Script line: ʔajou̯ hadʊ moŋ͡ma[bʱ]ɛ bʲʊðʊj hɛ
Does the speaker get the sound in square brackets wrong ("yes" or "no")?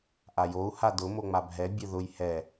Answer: no